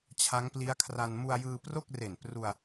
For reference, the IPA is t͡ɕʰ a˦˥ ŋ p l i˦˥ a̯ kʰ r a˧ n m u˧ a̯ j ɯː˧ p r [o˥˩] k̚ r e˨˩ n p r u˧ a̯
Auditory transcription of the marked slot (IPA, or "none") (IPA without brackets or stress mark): o˥˩